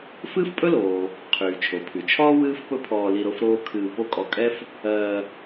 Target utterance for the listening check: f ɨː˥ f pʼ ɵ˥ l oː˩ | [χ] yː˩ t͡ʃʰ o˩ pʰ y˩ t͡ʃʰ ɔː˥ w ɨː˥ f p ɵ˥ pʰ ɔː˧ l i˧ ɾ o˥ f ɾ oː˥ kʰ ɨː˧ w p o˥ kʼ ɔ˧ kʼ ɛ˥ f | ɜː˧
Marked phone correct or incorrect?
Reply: incorrect